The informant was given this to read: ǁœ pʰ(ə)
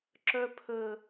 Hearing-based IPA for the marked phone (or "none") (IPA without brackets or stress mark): ə